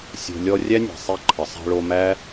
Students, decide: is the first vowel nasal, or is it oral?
oral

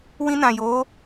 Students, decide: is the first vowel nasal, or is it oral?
nasal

